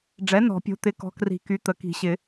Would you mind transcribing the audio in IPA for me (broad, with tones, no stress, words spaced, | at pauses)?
ɖ͡ʐɛ˩˥nɔ̤˨˩˦pʲo̤˩˥t̪ɪ˩˥ kɔ̤˩˥kri̤˨˩˦ky˩˥ t̪ə˩˥ki̤˨˩˦ɕɪ˨˩˦